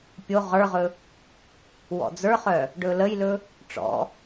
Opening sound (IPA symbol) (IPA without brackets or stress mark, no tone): pʲ